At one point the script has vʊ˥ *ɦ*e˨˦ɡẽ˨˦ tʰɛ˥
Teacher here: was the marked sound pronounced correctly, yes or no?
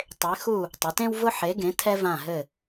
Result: no